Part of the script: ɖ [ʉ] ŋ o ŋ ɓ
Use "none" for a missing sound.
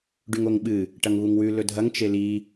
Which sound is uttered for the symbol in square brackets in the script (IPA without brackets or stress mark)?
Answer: ʉ